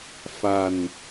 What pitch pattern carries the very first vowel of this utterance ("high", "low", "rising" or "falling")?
falling